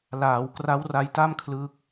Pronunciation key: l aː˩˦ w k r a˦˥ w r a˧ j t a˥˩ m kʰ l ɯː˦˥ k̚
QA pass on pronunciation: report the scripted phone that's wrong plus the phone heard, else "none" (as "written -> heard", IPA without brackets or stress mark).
none